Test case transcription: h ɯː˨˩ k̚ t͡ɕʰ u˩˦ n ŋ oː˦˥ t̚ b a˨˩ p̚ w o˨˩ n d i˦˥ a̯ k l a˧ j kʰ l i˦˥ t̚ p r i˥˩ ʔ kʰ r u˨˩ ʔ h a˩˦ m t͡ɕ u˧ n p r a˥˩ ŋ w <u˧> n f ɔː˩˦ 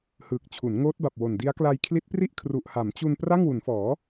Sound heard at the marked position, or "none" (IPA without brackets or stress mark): u˩˦